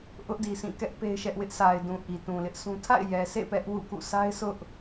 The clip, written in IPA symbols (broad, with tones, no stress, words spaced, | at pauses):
ʔʊ˦ʔdi˨sʰĩ˦˨ kɛ˦ʔ pe˦ɪ̯ʃɛ˦ʔ wɪ˦ʔsʰa˨ɪ̯dũ˨ ʔi˨tũ˨lɪ˦ʔsũ˦ tʰa̰˦˨ɪ̯jɛ˨sḛ˦˨ pɛ˦ʔwṵ˦˨kṵ˦˨ sa˦ɪ̯sʊ˦ʔ